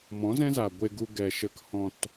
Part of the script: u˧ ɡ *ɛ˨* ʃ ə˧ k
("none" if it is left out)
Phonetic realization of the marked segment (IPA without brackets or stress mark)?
ɛ˨